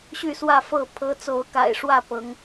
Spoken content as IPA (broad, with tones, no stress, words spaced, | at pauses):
ɕy˥˨swä˥˨fɤ˥˨ pʰɤ˨˦ t͡so˨˦ʊ̯ka̰˨˩ɪ̯ ʂwä˥˨pɤ˨˦ŋ